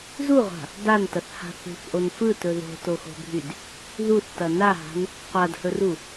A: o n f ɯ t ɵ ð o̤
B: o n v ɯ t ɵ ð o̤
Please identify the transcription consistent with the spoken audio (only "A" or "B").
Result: A